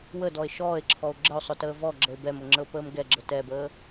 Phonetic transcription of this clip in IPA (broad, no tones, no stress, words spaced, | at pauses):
wədɔe̯ ʃɔːe̯ǁʰɔo̯ ɡ͡ǁəo̯sˤʊtəː vɔɡ͡ǁəe̯ bɛmʊŋ͡ǁəo̯pəːm ɡɛɡ͡ǁə tɛbəː